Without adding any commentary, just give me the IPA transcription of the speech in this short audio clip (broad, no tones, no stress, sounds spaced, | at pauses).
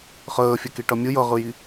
χ əː fʲ ɐ k i ʈ ʌ mʲ ɯ j ʌ ʁ ɯ j i